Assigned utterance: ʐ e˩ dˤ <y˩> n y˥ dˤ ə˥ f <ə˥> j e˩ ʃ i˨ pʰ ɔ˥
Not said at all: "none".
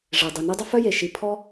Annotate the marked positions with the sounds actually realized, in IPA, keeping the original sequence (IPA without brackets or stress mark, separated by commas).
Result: y˩, œ˥